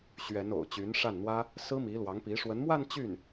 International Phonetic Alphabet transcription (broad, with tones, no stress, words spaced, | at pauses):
ɕɥɛ˧˥n o̰˨˩ʊ̯t͡ɕy˧˥nʂa˥˩nn̪wä˥ | sɹ̩˥mi˧˥lwɑ˧˥ŋpi˧˥ ʂwə˧˥nmwa˥˧n t͡ɕy˥˩n